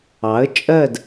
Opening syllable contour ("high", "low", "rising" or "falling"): rising